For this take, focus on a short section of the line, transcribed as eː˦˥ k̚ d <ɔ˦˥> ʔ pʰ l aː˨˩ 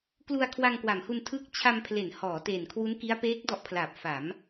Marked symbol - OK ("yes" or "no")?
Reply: yes